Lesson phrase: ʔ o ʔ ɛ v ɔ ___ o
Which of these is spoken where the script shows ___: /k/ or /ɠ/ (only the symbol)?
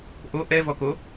k